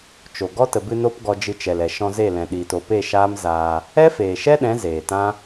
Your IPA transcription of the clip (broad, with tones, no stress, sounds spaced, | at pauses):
t͡ʃ o˨ ɡ ɔ˦ t ə˨ b ɨ˧ n o˦ p ɡ ɔ˧ d͡ʒ ɨ˧ t͡ʃ ɛ˨ l ɛ˨ ʃ ɔ̃˧ z e˦˨ l ɛ̃˨ ɗ iː˨ t o˨ p e˦˨ ʃ aː˦ m z aː˧ | ɛ˦ f eː˨ ʃ ɛ˦ ɗ ɛ̃˨˦ z eː˨ t ã˦